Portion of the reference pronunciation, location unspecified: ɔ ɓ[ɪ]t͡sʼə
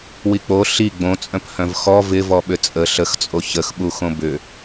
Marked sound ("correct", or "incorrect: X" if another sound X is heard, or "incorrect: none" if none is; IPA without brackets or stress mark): incorrect: ʏ